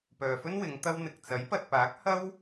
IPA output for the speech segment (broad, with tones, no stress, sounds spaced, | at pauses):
p œː˨ f ɵ˥ n w ɪ˨˧ ŋ t̪ ɐ˥ w n̪ ɪ˨ k̚ t͡s ɐ˨˥ j p ɐ˨ t̚ p aː˨˥ k̚ h ɐ˥ w